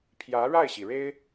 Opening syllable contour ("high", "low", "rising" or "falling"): rising